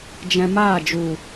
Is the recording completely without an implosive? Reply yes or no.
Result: yes